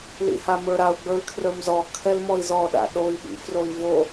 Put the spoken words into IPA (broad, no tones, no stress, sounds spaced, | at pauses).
l ḭ h a m ə˞ ɾ a u̯ ɡ͡b ə˞ y̯ kʰ r ə˞ m z ɔ kʰ ɛ l m ɔ i̯ z ɔ ɗ a̰ ɗ o i̯ ɓ ḭ f r o i̯ v o